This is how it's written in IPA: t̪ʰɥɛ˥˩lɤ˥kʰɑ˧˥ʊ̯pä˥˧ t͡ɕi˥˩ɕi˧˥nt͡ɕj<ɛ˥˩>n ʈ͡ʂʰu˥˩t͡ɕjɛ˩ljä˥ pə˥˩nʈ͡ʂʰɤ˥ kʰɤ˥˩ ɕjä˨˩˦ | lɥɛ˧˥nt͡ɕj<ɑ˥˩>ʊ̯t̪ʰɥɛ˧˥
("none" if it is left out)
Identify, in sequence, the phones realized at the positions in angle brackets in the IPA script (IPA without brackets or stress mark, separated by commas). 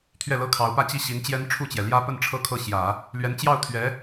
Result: ɛ˥, ɑ˥˩